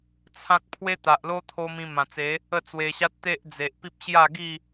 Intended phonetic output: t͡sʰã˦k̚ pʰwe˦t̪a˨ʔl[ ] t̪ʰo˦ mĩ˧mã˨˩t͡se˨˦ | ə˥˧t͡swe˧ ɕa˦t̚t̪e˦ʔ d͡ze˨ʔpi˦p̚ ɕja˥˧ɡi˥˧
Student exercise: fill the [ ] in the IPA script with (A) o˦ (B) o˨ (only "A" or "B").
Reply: A